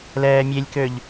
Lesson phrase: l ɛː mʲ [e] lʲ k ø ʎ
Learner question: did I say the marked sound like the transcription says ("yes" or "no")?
yes